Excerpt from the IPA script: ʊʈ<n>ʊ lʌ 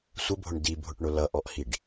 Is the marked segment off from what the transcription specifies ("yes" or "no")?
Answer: yes